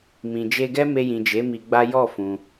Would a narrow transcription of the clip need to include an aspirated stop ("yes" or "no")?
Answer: no